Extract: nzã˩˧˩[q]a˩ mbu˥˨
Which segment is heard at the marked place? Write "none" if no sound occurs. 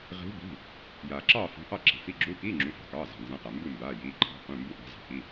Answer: q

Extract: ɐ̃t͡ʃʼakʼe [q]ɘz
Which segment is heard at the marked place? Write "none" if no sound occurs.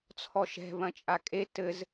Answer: t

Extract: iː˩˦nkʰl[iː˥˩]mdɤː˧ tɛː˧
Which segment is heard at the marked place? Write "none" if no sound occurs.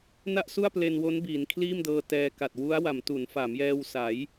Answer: iː˥˩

